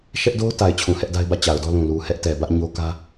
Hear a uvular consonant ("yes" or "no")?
no